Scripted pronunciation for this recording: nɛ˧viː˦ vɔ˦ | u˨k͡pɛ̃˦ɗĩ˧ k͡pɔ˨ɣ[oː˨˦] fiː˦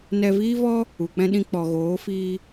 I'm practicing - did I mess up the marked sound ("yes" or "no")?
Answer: no